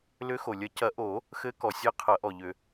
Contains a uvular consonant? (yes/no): yes